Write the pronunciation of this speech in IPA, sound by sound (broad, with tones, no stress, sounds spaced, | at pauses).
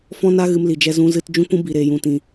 f ɔ̃˦ n a˦ ɣ ɨ˧ m l i˨ d͡ʒ ɛ˧ z ũ˧ z ɨ˧ t d͡ʒ ũ˦ kʷ ũ˦ b i˨ ɾ eː˨ j ũ˨ t ĩ˨